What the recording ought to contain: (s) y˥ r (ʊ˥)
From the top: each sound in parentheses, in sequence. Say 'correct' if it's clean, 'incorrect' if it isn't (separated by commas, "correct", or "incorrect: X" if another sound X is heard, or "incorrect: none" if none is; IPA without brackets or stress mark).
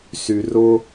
correct, correct